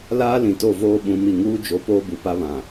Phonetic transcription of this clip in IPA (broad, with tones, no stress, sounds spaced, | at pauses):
l aː˦ l ĩ˨ t o˦˨ v oː˦ ɓ ũ˨˦ m i˨ ŋ uː˦ d͡ʒ o˨˦ p oː˦ b u˨ p a˦ β ã˨